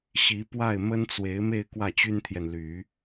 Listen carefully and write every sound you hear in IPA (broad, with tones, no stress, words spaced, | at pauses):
ɕi˧˥pwa˥˩ɪ̯ mə˥nt͡swe˧˥ɪ̯me˥˧ɪ̯ kwä˥˩t͡ɕy˥nt̪ʰjɛ˨nly˨˩˦